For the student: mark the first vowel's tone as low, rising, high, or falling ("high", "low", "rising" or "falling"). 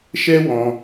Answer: high